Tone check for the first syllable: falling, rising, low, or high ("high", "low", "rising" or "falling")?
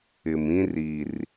low